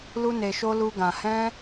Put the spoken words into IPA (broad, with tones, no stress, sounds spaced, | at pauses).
l u˦ n e˧ ʃ o˦ l u˦ ɡ ã˧ h ɛ̃˦